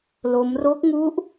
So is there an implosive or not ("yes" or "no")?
no